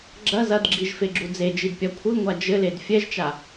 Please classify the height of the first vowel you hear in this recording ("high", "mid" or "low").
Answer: low